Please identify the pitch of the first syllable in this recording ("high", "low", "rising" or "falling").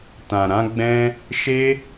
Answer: low